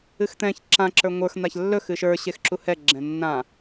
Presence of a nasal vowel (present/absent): present